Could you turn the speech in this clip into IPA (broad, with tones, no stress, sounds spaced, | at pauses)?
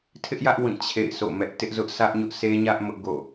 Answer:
tʰ ɪ˦ ʔ j ä˦ ʔ w ĩ˦˨ t͡ɕʰ ḛ˦˨ ɪ̯ s o̰˦˨ m ɛ˦ ʔ t ɪ˦ ʔ z ʊ˦ ʔ sʰ ä˦ ʔ ɲ ʊ˦ ʔ sʰ e˦ ɲ ä˦ ʔ m ʊ˦ ʔ ɡ o̰˦˨